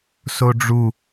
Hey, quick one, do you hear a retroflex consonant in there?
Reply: yes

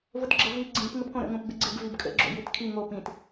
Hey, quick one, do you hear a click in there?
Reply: yes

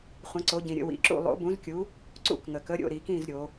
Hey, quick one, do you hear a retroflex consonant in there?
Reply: no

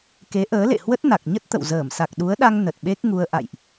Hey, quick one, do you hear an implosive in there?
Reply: yes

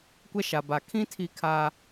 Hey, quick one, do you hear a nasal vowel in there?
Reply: yes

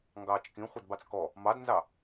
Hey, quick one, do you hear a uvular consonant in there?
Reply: yes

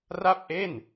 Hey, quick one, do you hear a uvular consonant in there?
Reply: no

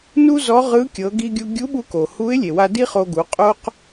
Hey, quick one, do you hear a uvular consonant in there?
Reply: yes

